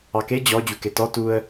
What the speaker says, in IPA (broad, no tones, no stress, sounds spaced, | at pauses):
ɑ k e d͡ʑ ɔ d͡ʑ u k e t ɔ t u ə̯